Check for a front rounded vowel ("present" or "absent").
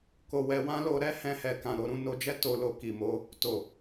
absent